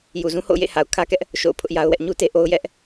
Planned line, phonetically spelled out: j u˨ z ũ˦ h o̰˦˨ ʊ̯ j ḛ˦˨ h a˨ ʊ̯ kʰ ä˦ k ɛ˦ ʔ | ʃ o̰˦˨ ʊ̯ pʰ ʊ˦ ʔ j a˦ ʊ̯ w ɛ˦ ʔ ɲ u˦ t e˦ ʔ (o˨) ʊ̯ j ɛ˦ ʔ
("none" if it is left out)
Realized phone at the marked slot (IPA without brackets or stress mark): o˦